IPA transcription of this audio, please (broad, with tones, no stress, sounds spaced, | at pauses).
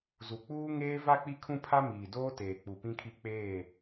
z u˨ k͡p uː˦ ŋ eː˦ v a˦ k͡p i˦ kʰ ũ˦ pʰ a˦ m iː˨ d oː˦ t eː˨ k͡p u˨ p ĩ˦ kʰ i˦ k͡p eː˦˨